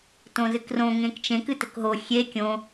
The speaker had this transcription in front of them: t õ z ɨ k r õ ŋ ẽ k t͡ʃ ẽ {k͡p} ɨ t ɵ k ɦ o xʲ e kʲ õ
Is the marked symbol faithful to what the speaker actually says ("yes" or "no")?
no